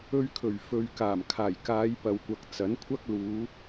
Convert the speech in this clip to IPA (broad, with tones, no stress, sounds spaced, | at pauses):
ɵ˧ ɥ kʰ ɵ˨˩ ɥ f ɵ˨ ɥ k aː˨˩ m kʰ aː˨˩ j k aː˨˧ j p ɐ˨ w kʷ ɐ˨ k̚ t͡s ɐ˨˥ n kʷʰ ɐ˥ k̚ l uː˨˧